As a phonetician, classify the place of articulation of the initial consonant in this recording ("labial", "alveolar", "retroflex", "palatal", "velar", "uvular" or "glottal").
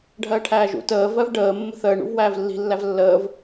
retroflex